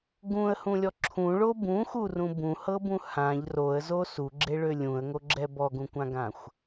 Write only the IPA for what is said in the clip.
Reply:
ɡũə̯hũlʲɔ ǁʰũɭo bũxurũ bũhɤbũ hãʎ roə̯zo suɡ͡ǁeɭø lʲũə̯ŋoɡ͡ǁɛ bɔɡũkʷãɡãxʷ

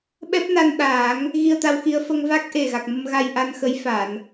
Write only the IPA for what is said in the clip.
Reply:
ɓɛ˦˥p̚na˧nɗaː˨˩˦ŋ | ɣi˧ə̯t̪a˧wxi˧ə̯ fə˧ŋva˦˥k̚ ʔe˨˩ɣa˨˩k̚mə˧m ɣa˧jʔa˧nxə˧˥j fa˨˩˨n

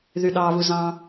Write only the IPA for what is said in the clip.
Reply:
ðyɗɑβuzɑ̃

